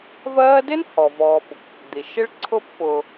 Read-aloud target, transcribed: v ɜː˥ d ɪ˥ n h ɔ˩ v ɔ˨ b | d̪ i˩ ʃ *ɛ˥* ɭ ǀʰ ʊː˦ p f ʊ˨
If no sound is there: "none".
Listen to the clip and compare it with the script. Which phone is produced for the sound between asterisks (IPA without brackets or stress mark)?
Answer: ɪ˥